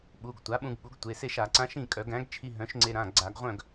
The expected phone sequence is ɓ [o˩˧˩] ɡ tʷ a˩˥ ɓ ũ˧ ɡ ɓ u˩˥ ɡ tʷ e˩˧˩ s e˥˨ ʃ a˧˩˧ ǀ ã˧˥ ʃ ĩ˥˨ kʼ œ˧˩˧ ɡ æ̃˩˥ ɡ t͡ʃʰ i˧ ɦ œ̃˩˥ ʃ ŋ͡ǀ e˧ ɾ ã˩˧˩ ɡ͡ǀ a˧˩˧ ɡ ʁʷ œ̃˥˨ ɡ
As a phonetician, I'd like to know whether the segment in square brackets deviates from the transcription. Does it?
yes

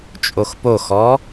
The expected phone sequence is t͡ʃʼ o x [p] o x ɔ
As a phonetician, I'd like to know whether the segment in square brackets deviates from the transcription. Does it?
no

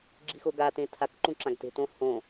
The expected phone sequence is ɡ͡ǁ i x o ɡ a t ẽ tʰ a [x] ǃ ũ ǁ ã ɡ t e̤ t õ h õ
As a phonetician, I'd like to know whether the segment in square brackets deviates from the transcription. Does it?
yes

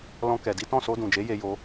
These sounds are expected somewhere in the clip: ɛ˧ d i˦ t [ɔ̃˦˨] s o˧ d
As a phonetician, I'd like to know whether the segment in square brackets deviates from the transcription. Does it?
no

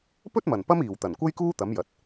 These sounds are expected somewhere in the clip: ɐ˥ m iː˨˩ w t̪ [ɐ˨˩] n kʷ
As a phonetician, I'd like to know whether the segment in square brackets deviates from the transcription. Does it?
no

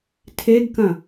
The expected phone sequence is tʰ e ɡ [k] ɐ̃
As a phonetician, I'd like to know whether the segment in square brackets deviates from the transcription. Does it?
no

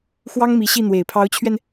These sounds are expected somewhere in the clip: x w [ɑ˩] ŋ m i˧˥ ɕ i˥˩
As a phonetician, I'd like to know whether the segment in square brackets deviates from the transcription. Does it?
yes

